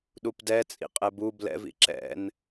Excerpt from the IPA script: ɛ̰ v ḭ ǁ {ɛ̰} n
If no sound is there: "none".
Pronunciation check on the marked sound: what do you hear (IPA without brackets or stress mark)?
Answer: ɛ̰